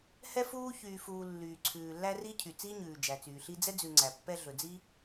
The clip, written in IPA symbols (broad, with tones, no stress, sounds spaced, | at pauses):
h ɛ˥ f uː˥ ç yː˨ f uː˨ lː yː˩ ǀʰ ʉː˩ lː æ˦ r i˥ cʰ y˩ t͡s iː˥ ɲ ʉː˩ d͡ʒ æ˩ t͡s yː˩ ɬ i˦ d͡z ɛ˥ d͡z ʉ˨ ŋ͡ǀ æ˩ pː ɛ˦ ɮ ɵ˩ d͡z i˥